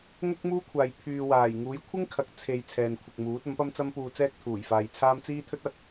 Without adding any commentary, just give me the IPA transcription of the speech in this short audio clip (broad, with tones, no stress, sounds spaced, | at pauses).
ŋ ʊ˥ k̚ m uː˥ kʷʰ aː˨ j pʰ yː˨ w aː˨˩ j ŋ uː˨˥ j kʷʰ ɪ˥ ŋ kʰ ɐ˨ k̚ t͡sʰ e˨ j t͡sʰ ɛː˨ n kʷʰ ɪ˨ k̚ m uː˨˥ t̚ ɐ˨˥ m p ɐ˥ m t͡s ɐ˥ m p uː˧ t͡s ɛː˥ k̚ t̪ʰ uː˨˩ j f aː˨˧ j t͡sʰ aː˥ m t͡s iː˥ t̪ʰ ɵ˥ t̚ ɐ˨˥ k̚